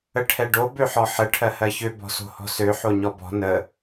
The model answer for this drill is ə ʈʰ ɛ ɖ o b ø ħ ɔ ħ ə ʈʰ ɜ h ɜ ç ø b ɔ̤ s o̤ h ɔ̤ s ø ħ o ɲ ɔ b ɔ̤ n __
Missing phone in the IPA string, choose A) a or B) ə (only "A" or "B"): B